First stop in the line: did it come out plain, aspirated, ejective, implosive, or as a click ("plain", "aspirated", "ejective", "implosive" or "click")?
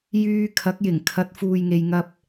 aspirated